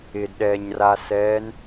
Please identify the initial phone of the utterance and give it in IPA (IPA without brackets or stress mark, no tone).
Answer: ɪ